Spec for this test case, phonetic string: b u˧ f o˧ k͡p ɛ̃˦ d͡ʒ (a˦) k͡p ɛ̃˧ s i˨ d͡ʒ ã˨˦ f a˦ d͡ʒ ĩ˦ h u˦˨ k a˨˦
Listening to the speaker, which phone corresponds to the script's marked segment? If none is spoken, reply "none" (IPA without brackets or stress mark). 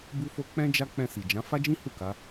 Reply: a˦